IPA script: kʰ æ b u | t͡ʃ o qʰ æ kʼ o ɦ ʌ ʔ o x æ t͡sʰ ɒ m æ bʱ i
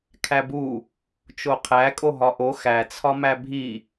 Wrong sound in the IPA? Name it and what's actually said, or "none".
ʌ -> ɒ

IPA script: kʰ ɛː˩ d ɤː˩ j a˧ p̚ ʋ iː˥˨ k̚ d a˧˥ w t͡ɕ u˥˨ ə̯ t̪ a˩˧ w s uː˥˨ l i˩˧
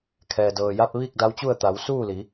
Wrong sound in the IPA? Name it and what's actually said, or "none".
none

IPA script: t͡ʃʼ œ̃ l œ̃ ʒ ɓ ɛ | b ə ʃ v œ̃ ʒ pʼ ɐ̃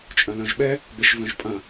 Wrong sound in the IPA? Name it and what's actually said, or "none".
none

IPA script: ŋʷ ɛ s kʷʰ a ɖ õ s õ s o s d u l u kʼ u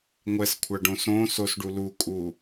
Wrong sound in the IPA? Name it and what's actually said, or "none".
d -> ɖ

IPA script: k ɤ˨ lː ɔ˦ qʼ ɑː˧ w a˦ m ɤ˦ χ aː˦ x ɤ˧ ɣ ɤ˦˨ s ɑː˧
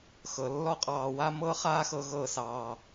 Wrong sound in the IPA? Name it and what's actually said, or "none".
k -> x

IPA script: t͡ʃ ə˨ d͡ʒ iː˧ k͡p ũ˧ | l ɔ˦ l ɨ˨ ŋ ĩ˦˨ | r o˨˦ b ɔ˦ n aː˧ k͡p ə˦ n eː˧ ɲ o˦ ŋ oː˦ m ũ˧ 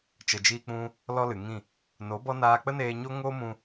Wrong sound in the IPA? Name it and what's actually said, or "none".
r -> n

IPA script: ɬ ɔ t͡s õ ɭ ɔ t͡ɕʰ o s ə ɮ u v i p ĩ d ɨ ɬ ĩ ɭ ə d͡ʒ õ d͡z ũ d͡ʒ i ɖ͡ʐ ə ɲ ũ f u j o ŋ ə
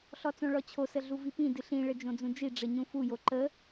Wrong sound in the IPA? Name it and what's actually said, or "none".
ŋ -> ǃ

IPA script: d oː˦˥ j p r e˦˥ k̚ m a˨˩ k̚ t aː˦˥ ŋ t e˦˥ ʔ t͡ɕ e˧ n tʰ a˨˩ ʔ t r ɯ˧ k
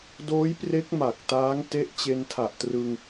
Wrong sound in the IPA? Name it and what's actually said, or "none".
k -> ŋ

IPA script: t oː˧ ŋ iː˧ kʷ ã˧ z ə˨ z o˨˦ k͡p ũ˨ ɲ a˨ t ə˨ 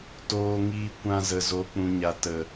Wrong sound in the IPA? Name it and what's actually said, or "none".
none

